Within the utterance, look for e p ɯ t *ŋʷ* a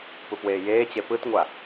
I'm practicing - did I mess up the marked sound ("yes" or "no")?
no